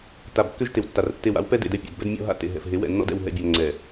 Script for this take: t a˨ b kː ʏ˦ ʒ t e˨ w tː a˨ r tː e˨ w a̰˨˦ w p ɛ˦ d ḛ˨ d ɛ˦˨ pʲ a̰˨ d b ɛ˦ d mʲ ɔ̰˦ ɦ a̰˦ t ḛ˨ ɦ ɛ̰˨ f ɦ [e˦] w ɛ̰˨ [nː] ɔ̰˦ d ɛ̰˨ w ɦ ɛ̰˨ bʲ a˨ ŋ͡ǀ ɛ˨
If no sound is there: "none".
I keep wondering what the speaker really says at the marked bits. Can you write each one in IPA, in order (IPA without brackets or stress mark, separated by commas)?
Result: e˨˦, nː